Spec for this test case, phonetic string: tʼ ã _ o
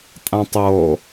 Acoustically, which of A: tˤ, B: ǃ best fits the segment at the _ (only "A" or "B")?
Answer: A